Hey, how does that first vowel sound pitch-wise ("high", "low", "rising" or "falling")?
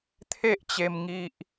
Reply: high